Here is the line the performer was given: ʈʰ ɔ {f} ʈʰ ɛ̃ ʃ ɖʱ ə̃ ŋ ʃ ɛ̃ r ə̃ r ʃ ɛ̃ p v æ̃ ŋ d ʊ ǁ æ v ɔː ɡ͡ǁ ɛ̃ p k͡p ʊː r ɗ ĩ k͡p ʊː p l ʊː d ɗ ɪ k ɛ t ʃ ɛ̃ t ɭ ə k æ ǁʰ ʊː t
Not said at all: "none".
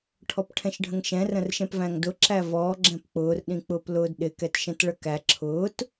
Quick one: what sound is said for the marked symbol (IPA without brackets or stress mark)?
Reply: p